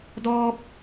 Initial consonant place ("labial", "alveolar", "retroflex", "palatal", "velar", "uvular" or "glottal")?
alveolar